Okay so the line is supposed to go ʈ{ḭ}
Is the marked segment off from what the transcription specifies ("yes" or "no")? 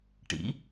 no